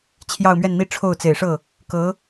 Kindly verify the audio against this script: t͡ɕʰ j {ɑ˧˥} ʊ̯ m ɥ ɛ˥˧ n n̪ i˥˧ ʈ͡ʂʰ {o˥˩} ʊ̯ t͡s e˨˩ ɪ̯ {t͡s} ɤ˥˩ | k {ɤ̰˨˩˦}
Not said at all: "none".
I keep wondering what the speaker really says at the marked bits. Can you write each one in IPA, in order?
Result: ɑ˥˧, o˥˩, ʂ, ɤ˧˥

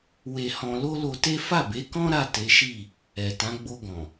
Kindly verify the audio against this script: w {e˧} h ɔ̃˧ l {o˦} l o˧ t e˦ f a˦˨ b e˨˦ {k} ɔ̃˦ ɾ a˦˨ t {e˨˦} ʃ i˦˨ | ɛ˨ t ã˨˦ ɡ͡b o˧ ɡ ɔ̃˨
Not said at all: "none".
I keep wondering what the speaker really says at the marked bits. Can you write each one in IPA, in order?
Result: e˧, o˦, k, e˨˦

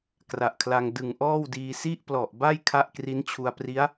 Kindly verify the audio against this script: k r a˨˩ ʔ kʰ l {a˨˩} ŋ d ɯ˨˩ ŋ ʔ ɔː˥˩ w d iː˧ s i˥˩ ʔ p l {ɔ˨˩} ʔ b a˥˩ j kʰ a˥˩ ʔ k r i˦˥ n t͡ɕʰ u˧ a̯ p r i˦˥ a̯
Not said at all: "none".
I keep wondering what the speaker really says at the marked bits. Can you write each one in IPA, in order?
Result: a˧, ɔ˨˩

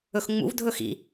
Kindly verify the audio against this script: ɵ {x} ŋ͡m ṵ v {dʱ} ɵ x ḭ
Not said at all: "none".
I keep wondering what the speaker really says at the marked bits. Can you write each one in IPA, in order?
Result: x, dʱ

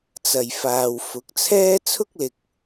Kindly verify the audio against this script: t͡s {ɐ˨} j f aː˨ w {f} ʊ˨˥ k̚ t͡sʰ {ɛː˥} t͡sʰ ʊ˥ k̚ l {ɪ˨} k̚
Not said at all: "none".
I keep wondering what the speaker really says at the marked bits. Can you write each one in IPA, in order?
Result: ɐ˨, f, ɛː˥, ɪ˧

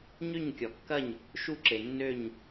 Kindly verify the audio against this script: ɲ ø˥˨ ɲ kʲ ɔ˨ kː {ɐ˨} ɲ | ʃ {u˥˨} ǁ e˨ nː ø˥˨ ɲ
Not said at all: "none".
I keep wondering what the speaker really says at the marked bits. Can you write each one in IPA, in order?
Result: ɐ˥˨, u˥˨

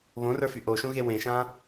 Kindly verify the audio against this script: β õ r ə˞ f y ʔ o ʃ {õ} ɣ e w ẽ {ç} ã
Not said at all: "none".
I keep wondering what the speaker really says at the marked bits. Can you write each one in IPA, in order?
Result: õ, ʃ

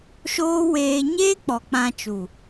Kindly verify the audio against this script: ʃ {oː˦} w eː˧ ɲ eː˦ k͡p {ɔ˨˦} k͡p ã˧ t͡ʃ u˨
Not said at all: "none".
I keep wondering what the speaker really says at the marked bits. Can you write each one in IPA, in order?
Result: oː˦, ɔ˨

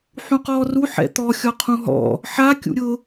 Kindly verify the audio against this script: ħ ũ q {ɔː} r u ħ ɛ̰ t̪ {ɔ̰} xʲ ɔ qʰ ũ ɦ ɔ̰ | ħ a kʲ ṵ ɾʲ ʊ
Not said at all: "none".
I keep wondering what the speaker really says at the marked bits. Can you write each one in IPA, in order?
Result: ɔː, ɔ

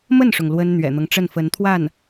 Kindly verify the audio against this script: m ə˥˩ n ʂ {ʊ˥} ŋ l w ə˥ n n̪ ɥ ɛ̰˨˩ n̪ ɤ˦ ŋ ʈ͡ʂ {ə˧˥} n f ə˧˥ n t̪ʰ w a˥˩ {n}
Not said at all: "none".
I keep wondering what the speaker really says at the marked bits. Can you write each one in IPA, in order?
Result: ʊ˩, ə˥˩, n

